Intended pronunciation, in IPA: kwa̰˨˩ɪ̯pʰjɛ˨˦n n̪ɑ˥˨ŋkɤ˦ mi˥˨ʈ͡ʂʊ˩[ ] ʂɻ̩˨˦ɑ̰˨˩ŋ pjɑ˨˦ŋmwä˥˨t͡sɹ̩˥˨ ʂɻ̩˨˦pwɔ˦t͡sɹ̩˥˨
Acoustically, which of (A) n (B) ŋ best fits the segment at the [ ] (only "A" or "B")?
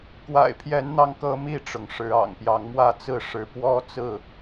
B